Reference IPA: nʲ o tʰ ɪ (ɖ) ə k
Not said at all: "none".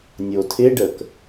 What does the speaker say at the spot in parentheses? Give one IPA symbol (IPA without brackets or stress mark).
ɖ